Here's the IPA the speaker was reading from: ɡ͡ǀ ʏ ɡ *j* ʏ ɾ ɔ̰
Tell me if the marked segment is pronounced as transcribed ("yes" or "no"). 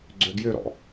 yes